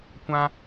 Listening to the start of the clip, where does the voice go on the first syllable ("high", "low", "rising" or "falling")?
high